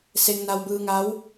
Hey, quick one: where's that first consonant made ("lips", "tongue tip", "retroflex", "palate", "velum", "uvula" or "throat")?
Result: tongue tip